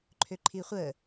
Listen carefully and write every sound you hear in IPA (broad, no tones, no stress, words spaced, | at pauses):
ǃʰøǃʰiχʷəː